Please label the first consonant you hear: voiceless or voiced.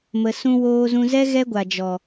voiced